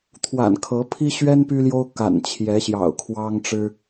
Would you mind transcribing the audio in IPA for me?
t̪ʰwa̰˨˩nkʰɤ˨˦pʰi˦ ɕɥɛ˦n py˦ljo˦ʊ̯ ka̰˨˩nt͡ɕʰjɛ˨˦ɕjɑ̰˨˩ʊ̯ kʰwɑ˦ŋʈ͡ʂɻ̩˦

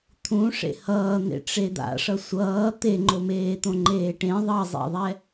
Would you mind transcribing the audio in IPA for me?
t̪ʰũ ʂḛhʌːn̪ḛ ʈ͡ʂed̪a̰ ʂʌsʷʌː t̪eŋ͡ǃomeːt̪õ ŋ͡ǃeːʈẽ ðˤʌzˤḛðˤɛ

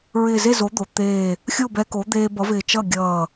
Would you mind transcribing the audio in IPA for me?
ɹɪː˧˩ze˥˩zo˩˥ d̪o˩˧t̪eː˧˩ | xʲo˥˩bɛ˧ ko˩˥ d̪eː˧ bʌ˩˥vɪː˧˩ t͡ʃʌ˥˩ɡʲʌː˧˩

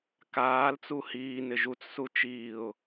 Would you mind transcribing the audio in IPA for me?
kaːlt͡su hiːnɪ ʒut͡ssu t͡ʃiːʊ̯

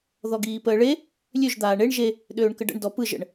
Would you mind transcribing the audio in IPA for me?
ðɔɡiːpəːɭe | lʲøʒ d̪aːɳeɳ ʒe | ɗøːɳkəɖə̰ɳ dɔpɯʒ ə̰ɳ

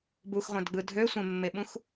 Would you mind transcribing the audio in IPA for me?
buxʁʷæ̃dɡ͡bɯ dʱøsʷẽmːeɓũx

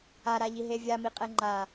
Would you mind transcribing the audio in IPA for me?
aɾaʎiɦe vʲamiqʼɛ ŋ͡ǃa

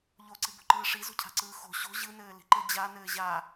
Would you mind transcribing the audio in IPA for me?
ʎoǀibo̤ǃɯː ʂizo̤cʰa̤ǀɯː xo̤ ɕo̤ ʑɯnɘː li̤ǃɘd͡ʑa nɘːʑa

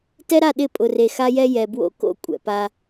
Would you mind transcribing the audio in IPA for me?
tɛ˦ɾa˦˨ ɗɪ˦˨pʼʊ˨re˨ xa˦jɛ˦ jɛ˨bwo̰˦ ko̰˦ kʷʼɛ̰˨pa˦

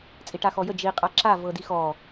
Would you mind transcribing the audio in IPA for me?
t͡sʼiʈaxɔjə d͡ʒi qʼaǁa vɤdixɔ

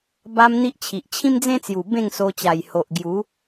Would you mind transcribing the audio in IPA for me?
ba˧m n̪i˦ʔt͡ɕʰi˨ʔ t͡ɕʰĩ˦md͡zẽ˦t͡sju˨˩ bẽ˥˧ŋso˧t͡ɕa˨˩j ho˨ʔɡju˨˦

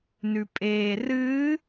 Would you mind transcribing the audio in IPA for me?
nʉpʼeːrɨː

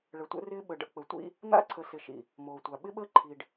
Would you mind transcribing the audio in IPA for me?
ɭə˨tʷə̰˦ rɪː˦ɓə˨ɖə̰˦ k͡pə˨ tʷḭ˦ | n̪a̰˦˨ǀʰə˨ sɪ˨ʃḭ˨ | moː˨tʷa˨ ɓɪ˦ɓəː˦ ǃʰi˨ɖ

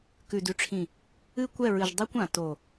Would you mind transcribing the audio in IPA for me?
kʉ˨dʉ˨ʈ͡ʂʰĩ˨ | ɨ˦kʷɛ˦˨ɹɨ˨ʒ dˤi˦kʷã˨to˨

